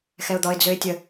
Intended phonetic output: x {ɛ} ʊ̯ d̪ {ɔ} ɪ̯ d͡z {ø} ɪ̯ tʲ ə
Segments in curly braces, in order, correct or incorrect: correct, correct, correct

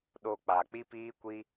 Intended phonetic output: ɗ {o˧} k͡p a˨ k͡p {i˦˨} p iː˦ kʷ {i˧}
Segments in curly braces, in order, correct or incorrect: correct, incorrect: i˦, correct

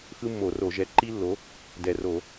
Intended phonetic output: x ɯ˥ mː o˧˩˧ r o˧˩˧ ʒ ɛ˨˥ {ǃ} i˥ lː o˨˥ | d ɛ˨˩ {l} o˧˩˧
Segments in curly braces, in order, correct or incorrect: correct, incorrect: r

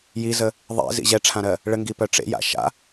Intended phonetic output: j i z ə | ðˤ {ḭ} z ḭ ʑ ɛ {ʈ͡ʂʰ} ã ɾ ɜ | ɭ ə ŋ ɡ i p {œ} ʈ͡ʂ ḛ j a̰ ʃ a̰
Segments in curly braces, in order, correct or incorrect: incorrect: ḛ, correct, correct

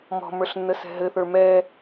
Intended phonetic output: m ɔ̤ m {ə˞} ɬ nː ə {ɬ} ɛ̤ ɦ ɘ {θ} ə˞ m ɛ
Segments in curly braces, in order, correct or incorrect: correct, incorrect: s, correct

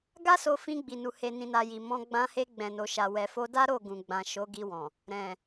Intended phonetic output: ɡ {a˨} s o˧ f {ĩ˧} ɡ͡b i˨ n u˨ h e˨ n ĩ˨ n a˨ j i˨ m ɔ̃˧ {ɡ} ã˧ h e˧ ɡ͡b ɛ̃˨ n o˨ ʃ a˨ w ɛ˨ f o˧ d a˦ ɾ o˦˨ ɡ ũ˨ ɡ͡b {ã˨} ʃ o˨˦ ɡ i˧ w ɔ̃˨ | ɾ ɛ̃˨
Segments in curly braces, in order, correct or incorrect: incorrect: a˦, correct, incorrect: ɡ͡b, correct

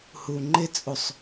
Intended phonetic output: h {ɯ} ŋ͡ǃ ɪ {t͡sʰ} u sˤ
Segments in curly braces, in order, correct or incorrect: incorrect: u, incorrect: t͡sʼ

